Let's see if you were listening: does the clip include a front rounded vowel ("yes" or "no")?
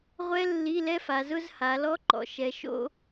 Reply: no